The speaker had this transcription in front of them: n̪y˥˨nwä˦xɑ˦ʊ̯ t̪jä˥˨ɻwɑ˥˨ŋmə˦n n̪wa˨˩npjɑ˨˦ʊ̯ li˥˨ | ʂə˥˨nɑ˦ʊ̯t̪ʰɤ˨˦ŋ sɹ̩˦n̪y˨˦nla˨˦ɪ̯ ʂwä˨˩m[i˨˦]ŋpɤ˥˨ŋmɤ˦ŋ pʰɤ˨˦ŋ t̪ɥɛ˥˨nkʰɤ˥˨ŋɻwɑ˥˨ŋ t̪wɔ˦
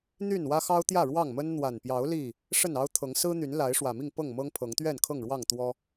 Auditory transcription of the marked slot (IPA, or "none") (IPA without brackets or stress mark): i˥˨